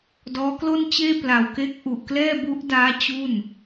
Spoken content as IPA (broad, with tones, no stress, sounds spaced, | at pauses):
d ɔː˦˥ k l o˥˩ n t͡ɕ eː˥˩ p l a˨˩ w k e˦˥ k̚ ʔ u˨˩ ʔ k l ɛː˥˩ b u˦˥ ʔ d aː˦˥ t͡ɕ u˥˩ n